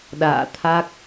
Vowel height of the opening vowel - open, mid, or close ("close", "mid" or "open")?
open